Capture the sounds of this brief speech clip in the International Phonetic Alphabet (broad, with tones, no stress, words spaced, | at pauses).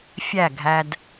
fʲæ˦˨ɡʱæ˦d